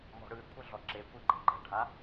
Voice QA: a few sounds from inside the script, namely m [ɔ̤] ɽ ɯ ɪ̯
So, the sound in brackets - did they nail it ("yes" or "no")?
yes